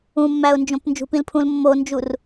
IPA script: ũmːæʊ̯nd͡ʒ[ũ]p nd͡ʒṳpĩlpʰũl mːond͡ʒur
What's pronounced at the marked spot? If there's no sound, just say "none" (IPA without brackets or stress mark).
õ